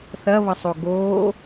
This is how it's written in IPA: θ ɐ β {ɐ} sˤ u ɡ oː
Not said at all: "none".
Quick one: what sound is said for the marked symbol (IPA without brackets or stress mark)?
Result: ɐ